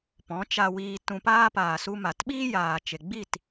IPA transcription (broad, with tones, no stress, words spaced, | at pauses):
pɔ̃˨˦t͡ʃa˧wiː˧ tũ˧paː˦ paː˨su˧ma˨t ɓiː˦jaː˨t͡ʃe˨ɡ͡bi˦˨t